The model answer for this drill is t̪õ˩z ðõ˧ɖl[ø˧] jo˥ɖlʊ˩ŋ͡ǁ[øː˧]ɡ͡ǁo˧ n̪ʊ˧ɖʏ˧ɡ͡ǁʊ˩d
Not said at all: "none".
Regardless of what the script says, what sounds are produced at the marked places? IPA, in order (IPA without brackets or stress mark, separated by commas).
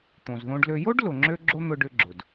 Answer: ø˧, ø˧